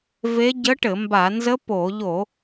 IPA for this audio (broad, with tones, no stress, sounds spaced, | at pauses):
v e˧˥ ɟ ə˧˥ ʈ ɘ˧˩˧ m b a˧˩˧ n z ə˧˥ p o˧˩˧ ʎ o˧˩˧